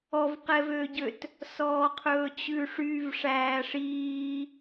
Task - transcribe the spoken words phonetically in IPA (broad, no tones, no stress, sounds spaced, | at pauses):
ɔ v q ɛ v ø ɟ ø t | s ɔː qʰ ɵː t͡ɕ ʉ ʂ y v ʂ æː ʂ iː